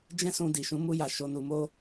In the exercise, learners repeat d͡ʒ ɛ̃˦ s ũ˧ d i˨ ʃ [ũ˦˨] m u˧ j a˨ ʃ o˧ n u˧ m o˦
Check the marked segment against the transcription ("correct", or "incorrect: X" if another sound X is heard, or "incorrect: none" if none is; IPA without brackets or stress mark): incorrect: ũ˨˦